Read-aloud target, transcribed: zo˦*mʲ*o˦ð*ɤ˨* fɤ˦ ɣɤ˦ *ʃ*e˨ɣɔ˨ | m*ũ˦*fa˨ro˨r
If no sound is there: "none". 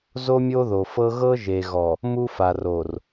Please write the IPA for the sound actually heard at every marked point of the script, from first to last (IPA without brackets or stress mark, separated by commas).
mʲ, o˨, ʒ, u˦